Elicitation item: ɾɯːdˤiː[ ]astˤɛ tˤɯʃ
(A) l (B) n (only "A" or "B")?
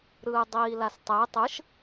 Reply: A